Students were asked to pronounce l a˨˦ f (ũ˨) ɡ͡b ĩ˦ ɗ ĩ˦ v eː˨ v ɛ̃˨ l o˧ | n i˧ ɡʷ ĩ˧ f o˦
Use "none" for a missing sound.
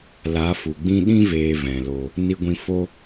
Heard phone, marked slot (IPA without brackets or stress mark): u˨